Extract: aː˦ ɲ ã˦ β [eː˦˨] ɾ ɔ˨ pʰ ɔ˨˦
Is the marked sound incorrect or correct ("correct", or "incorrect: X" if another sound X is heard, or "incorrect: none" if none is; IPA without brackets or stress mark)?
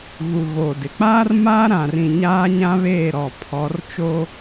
correct